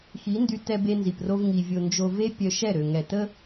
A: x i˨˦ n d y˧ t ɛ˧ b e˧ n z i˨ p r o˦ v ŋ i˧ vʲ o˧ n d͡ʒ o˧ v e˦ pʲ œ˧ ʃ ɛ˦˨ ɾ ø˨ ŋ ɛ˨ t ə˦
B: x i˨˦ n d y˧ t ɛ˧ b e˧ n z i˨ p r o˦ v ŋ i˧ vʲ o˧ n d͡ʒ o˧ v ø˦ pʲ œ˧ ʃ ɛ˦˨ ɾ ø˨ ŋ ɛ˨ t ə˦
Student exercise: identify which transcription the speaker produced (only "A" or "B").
A